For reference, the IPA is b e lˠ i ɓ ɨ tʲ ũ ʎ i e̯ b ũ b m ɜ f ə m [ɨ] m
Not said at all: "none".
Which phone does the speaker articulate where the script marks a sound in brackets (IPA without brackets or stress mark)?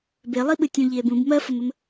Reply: ə